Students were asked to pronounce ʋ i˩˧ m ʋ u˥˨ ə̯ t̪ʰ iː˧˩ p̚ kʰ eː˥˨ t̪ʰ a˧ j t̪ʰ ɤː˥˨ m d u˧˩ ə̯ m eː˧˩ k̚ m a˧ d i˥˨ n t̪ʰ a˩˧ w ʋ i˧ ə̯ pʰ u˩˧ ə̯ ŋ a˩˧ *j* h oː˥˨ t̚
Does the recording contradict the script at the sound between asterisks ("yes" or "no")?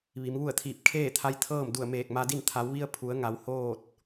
yes